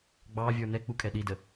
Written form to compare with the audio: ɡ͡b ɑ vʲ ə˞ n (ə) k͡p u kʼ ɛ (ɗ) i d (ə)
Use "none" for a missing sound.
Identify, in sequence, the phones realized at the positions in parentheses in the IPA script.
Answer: ɛ, ɗ, ə

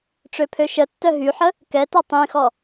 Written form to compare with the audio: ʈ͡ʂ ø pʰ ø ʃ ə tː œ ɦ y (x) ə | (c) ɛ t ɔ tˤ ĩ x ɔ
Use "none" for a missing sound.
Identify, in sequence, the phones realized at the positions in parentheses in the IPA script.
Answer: ħ, k

